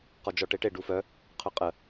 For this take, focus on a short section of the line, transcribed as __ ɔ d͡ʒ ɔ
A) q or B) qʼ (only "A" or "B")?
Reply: A